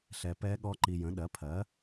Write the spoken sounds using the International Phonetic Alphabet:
ɬ ɛ˧ p ɛ˦˥ ɠ ɔ˦˥ ǃ i˧ j ə̃˨˥ ɗ ɜ˨˥ pʰ ɜ˨˥

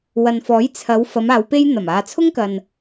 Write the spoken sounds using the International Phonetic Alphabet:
w ɐ˨ n f ɔː˨˥ j t͡sʰ ɐ˨˧ w f ɐ˨˧ m aː˨˧ w p e˥ j n̪ ɐ˨˩ m aː˨ t͡sʰ ʊ˥ ŋ k ɐ˨ n

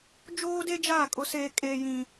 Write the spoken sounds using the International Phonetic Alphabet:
d͡ʒ oː˦ d e˦ d͡ʒ aː˦˨ kʼ ʊ˦ s eː˦ kʼ eː˦ j ĩ˦

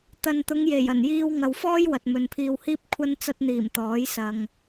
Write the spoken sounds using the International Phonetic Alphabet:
t̪ ɐ˨ n t̪ ʊ˨˧ ŋ j e˨˩ j ɐ˨˩ n j iː˧ w ŋ ɐ˨ w f ɔː˥ j w ɐ˨ t̚ m ɵ˨ n pʰ iː˧ w h iː˥ p̚ kʷʰ ɐ˥ n t͡s ɐ˧ t̚ n̪ iː˨˩ m t̪ ɔː˨˥ j s ɐ˨ ŋ

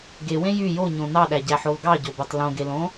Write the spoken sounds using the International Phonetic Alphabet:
ɡ e w ẽ j y j o ɲ õ n ɑ ɗ æ ɟ æ ħ o l ɡ ɑ ɟ o b o tˤ l õ ɡ e l õ

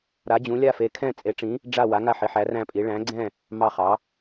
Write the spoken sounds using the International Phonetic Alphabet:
ɾ a˩˧ d͡ʑ ũ˩˧ lʲ a˧˩ f e˩˧ kʰ ɛ̃˧˩ t͡sʼ e˩˧ ʈ͡ʂ ĩ˩˧ | ɖ͡ʐ a˧˩ w a˩˧ ŋ a˧˩ ħ i˩˧ ħ æ˩˧ r æ̃˧˩ pʼ i˩˧ ɭ æ̃˩˧ ɡ͡ǀ ɛ̃˧˩ | m ɑ˧˩ χ ɑ˩˧

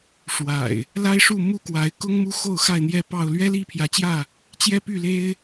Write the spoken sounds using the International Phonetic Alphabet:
ʂ w a̰˨˩ ɪ̯ | l a˦ ɪ̯ ʂ u˥˨ m u˥˨ k w a˨˦ ɪ̯ k ʊ˦ ŋ m u˦ x o˥˨ ʊ̯ x a˥˨ ɪ̯ n̪ j ɛ˥˨ p ɑ˥˨ ʊ̯ l ɥ ɛ˦ l i˥˨ pʰ j ä˨˦ t͡ɕ j ä˥˨ | t͡ɕ j ɛ˦ p y˥˨ l e˦ ɪ̯

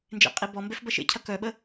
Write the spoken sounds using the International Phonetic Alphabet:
n d͡ʒ ḛ qʼ i b ɔ m b ɛ f b ɐ ʃ ḛ cʰ ɐ k œ ɓ ə

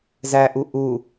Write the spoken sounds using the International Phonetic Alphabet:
z æ ʔ u ʔ u

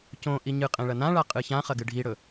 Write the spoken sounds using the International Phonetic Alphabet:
c õ ʔ i ɲ ɨ qʼ ẽ ɭ ɐ n ã ɭ a qʼ ɨ ç ã χ ɐ ɡ ɨ ɖʱ i ɽ ɵ

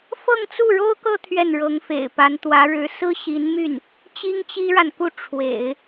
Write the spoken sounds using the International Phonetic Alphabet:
f ɤ˥˧ ŋ t͡s u˥˩ ɻ o˥ ʊ̯ k ɤ˥˧ t̪ʰ ɥ ɛ˥˩ n ɻ ɤ˧˥ ŋ f ḛ˨˩ ɪ̯ p a˧˥ n t̪ w ä˧˥ ɻ ɻ̩˧˥ s ɹ̩˥ ɕ i˧˥ n m y˥˩ n | t͡ɕ i˥ ŋ t͡ɕ i˥ ɻ a˨ n k u˥˩ ʈ͡ʂʰ w ḛ˨˩˦ ɪ̯

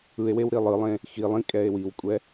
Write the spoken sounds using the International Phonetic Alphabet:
ɯ e̯ w e w ɾ i lˠ ɯ lˠ ẽ | x i lˠ ĩ kʼ ɛ e̯ w i w kʷʼ ɛ

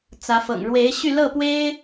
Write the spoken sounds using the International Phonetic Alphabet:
t͡s ä˧˥ f ɤ̰˨˩ ŋ ɻ w e˧˥ ɪ̯ ɕ y˥˧ l ɤ˥˩ p w e˥ ɪ̯

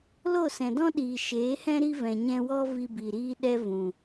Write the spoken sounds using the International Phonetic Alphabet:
l o˦˨ s ɛ̃˨ d ɔ̃˦ ɗ iː˨ ʃ eː˨˦ h ɛ̃˦ ɾ i˦ v ɛ̃˨ ɲ ɛ̃˧ w ɔ˦ v i˧ b i˨ ɾ iː˦ ɗ ɛ˦ v ũ˨

